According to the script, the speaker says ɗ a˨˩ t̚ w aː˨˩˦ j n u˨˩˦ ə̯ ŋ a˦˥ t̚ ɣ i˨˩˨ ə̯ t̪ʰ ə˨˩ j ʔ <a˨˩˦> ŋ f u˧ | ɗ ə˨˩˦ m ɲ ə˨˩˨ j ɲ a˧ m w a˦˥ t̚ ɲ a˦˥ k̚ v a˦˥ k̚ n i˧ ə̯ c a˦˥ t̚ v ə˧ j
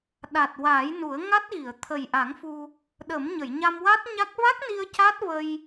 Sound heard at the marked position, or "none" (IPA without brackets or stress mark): a˨˩˦